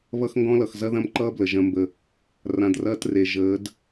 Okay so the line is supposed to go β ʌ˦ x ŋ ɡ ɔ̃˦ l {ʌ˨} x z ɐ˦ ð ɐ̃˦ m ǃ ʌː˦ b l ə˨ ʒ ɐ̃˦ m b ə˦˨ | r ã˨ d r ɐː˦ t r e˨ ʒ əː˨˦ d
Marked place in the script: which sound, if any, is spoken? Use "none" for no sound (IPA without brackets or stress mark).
ʌ˨